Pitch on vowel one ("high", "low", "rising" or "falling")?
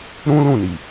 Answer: high